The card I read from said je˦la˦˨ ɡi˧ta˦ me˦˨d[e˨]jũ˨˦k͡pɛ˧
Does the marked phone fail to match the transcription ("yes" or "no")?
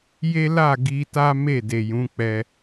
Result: no